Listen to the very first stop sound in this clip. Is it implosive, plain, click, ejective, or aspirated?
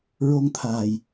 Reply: aspirated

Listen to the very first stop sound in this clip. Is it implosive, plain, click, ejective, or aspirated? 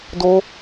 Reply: plain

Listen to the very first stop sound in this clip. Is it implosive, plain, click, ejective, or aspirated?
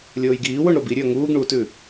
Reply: plain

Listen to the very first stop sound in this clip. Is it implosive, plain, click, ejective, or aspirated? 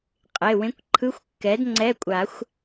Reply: ejective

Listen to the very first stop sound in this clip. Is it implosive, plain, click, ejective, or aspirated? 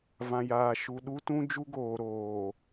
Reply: implosive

